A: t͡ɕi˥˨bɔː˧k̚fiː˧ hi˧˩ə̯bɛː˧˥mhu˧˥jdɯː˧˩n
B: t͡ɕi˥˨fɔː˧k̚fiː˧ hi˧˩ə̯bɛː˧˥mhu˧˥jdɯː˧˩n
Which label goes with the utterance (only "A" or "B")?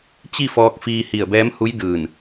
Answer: B